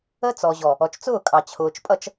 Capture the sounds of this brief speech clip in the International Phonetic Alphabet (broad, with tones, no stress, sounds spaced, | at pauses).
ə˦ t͡s ɔ˨ ʑ ɔ˨ | ɔ˨ t͡ʃ t͡s ʊː˦˨ kʼ ɑ˨ t͡ɕʰ ʊː˨ t͡ʃ pʼ ʌ˦ t͡ʃ